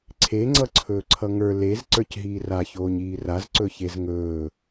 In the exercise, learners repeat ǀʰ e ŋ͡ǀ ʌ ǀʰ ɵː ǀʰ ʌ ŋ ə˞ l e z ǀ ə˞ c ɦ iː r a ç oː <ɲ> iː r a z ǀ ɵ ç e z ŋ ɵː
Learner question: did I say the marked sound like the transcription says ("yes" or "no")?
yes